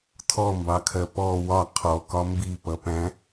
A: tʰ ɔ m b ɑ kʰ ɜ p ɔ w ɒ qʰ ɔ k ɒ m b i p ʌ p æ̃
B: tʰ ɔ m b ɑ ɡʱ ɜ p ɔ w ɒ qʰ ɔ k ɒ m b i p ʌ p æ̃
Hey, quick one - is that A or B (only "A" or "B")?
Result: A